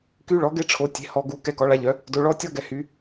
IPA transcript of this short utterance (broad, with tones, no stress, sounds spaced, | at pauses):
k y˦˥ ɭ ɔ˩˥ ɡ e˦˥ ʈ͡ʂʰ o˩˥ tʲ e̤˩˥ h ɔ˨ ɡ u˩˥ k ɛ˨ k ɔ˩˥ ɭ a˩˥ ʎ œ˩˥ | d o˨ ɭ ɔ˦˥ tʲ ɔ˦˥ ɡ ɛ˨ h y˩˥